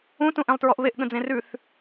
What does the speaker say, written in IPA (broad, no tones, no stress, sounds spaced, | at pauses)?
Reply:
ũ t ũ ʔ ẽ lˠ t ɹ ɔ ʔ β e ʔ ɠ ə̃ d͡z ẽ r ʉ θ